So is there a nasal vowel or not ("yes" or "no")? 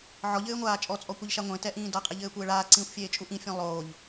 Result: yes